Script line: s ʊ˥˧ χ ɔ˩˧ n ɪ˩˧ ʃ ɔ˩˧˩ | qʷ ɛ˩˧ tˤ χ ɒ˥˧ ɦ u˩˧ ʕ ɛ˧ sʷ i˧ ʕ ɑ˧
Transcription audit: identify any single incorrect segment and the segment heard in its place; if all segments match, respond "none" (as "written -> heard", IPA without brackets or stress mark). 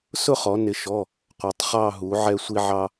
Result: ɒ˥˧ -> ɑ˥˧